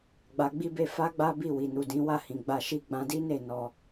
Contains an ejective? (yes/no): no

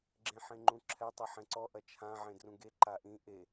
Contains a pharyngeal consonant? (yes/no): yes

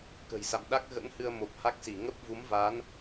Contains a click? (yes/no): no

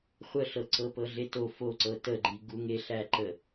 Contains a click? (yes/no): yes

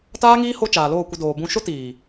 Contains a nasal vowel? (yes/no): yes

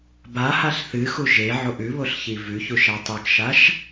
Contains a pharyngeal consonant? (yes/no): yes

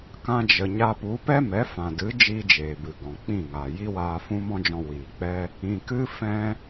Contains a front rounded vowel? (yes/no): no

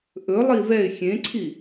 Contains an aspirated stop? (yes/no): yes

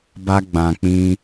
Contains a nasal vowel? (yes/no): yes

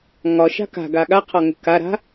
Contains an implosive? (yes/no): yes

